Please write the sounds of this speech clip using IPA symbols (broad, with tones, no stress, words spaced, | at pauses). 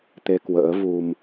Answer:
t̪e˧kwə̰ː˧˥vu˧m